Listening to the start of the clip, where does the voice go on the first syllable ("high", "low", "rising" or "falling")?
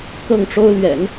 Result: falling